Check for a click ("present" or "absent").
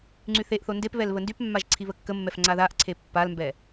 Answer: present